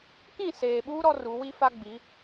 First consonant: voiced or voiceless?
voiceless